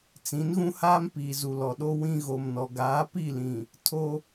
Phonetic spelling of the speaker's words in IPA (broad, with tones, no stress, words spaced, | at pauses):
t͡sĩ˨˦nɣũ˦haː˦m piː˨zu˨lɔ˨ ɗo˦ wĩ˦ɣo˨mnɔ˨ ɡaː˨˦pi˦˨lĩ˨ | tʰo˦